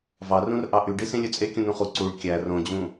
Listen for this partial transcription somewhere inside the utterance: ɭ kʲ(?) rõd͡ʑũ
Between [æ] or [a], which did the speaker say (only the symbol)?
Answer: æ